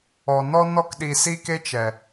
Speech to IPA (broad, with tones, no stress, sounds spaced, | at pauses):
ɔ˨ n ɔ˦ n ɔ˦ k ɗ i˧ s i˦ k e˦ t͡ʃ ɛ˨